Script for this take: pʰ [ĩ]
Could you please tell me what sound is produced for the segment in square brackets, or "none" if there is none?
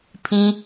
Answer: ĩ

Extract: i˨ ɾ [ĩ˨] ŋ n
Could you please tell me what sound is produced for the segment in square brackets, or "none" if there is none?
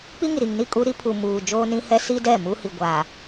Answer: i˨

